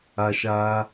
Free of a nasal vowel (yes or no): yes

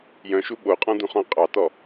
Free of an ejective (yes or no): no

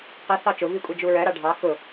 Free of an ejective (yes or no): no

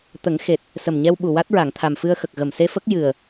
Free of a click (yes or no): yes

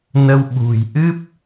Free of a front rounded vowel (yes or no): yes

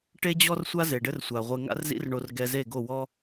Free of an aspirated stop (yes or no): yes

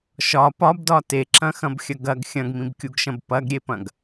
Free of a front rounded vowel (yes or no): yes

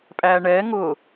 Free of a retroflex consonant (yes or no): no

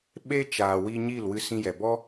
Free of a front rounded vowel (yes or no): yes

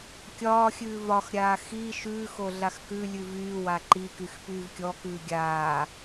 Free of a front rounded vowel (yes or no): no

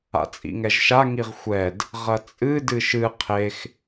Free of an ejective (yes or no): no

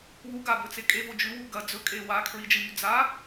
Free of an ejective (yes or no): no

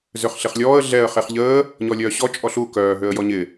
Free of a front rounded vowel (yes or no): no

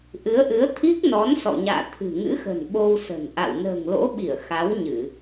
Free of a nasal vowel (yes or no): yes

